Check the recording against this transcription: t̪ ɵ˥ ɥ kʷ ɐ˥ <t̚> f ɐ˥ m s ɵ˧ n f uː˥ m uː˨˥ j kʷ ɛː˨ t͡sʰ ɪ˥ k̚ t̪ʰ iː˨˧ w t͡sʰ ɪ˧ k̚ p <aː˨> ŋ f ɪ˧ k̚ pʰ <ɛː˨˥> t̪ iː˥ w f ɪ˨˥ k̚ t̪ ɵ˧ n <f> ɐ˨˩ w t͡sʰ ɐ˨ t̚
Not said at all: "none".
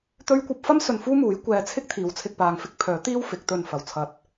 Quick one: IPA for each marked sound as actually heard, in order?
p̚, aː˨, œː˨˥, f

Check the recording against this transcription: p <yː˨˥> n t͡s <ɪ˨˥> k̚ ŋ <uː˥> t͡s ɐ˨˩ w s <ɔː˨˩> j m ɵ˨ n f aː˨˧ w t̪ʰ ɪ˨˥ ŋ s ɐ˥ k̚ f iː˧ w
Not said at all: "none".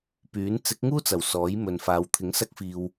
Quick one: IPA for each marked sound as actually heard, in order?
yː˨˥, ɪ˨˥, uː˥, ɔː˨˥

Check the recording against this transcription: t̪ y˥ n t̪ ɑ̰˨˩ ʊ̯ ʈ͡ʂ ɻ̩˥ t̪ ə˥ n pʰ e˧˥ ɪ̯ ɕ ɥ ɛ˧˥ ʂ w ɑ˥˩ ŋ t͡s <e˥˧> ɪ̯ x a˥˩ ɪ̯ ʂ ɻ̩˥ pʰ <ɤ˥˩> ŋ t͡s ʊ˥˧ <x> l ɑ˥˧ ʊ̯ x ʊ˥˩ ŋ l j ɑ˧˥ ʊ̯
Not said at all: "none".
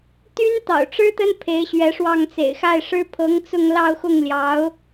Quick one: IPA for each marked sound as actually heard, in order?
ḛ˨˩, ɤ˧˥, ŋ

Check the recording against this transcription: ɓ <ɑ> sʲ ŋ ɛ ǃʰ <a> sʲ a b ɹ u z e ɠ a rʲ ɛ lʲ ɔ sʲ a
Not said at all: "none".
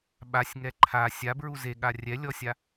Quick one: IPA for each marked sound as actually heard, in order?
a, a

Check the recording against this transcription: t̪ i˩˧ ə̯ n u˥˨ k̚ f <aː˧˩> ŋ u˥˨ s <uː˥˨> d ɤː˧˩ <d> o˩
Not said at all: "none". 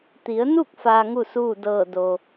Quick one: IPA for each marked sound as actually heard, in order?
aː˧, uː˥˨, d

